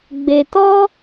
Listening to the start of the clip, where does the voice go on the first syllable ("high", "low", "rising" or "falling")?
low